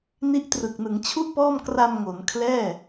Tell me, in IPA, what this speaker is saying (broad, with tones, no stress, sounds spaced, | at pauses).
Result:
n i˦˥ ʔ t r ɯ˨˩ k̚ n ɯ˩˦ ŋ t͡ɕʰ u˥˩ ʔ p ɔː˥˩ m k r a˧ m ŋ o˩˦ n kʰ l ɛː˥˩